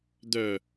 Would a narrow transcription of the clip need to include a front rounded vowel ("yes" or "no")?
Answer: yes